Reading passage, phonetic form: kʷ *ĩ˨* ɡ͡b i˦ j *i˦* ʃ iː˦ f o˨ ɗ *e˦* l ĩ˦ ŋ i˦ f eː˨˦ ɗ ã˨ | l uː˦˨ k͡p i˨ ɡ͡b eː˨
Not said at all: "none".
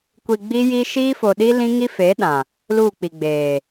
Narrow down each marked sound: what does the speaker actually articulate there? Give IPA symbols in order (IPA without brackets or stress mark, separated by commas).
i˨, i˦, i˦